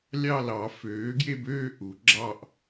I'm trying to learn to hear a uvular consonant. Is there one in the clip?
no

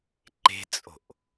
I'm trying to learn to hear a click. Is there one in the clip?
yes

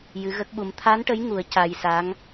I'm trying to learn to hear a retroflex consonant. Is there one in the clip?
yes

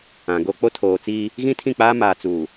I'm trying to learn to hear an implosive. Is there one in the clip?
no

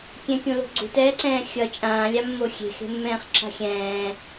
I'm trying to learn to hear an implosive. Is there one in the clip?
no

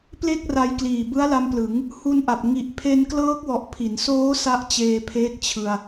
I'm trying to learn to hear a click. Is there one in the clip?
no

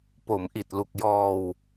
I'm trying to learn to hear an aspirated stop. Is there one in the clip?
no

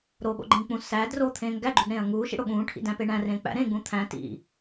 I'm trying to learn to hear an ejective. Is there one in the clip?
no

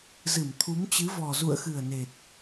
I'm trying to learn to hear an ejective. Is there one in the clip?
no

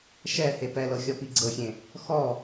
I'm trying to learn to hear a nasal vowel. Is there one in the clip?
yes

